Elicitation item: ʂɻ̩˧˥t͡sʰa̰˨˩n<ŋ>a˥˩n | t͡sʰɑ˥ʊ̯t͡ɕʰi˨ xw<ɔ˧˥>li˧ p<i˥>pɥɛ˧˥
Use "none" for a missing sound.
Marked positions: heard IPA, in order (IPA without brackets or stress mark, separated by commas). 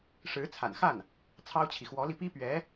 x, ɔ˧˥, i˥